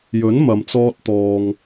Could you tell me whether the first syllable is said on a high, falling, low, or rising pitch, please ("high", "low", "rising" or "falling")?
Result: rising